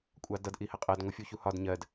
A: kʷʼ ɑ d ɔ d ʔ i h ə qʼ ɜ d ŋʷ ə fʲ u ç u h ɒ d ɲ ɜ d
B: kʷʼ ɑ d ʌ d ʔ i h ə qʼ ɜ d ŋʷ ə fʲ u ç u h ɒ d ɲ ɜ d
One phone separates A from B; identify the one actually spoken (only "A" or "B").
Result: B